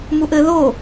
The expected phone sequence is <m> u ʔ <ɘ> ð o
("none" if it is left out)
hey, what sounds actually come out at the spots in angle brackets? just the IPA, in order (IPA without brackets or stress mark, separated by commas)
m, ɘ